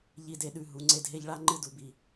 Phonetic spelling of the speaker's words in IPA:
ʎ i˨ d e˨ ɗ ʉ˨ ɦ u˨˦ ŋ͡ǀ e˦ d ɦ e˦ ʎ ɭ a˦ ŋ͡ǃ ɨ˦ d u˨ b i˨

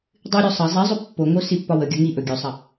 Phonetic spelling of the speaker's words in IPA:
dˤ ɨ ɾʲ o sˤ ɐ zˤ i zˤ ɵ pː o ŋ o s i pː ɒ w ə ɡʲ ɐ ŋ i ʔ ɵ ɡʲ ɵ sˤ ɐ

